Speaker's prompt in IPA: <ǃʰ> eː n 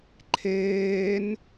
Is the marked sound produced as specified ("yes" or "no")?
yes